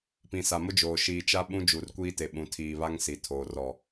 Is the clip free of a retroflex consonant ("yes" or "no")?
yes